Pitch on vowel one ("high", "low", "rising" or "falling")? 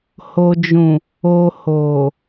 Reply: low